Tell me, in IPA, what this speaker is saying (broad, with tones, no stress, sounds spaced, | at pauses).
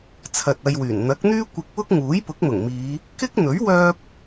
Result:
t͡sʰ ɐ˨ t̚ ɐ˧ j w yː˨˩ n n̪ ɐ˨˥ k̚ n̪ yː˥ kʷ ɪ˧ k̚ w ʊ˥ k̚ ŋ uː˨˥ j p ʊ˨˥ k̚ m ʊ˨˩ ŋ m iː˨˧ | k ɪ˥ k̚ n̪ ɵ˨˥ ɥ w œː˥ p̚